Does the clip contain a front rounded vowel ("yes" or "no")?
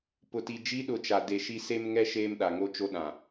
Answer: no